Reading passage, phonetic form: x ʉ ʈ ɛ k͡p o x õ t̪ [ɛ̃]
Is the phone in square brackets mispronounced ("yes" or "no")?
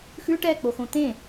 yes